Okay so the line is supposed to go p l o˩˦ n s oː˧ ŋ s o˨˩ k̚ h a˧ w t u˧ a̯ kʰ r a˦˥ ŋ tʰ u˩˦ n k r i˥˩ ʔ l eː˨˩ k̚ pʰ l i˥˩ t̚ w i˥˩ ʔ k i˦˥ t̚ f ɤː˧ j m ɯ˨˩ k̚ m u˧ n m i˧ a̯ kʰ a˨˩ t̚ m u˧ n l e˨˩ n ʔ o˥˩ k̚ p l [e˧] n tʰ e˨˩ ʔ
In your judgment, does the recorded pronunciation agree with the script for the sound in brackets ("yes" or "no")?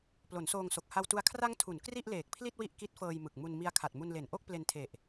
yes